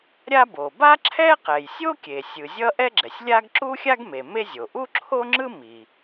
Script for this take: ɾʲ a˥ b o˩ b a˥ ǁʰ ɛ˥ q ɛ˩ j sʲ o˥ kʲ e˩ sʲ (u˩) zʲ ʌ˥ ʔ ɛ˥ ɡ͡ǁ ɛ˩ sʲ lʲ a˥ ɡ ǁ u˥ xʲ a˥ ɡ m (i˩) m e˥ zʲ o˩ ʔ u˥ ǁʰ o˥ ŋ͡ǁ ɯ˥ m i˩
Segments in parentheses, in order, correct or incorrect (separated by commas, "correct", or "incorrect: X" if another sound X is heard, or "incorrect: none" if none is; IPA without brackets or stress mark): incorrect: ɯ˩, incorrect: e˩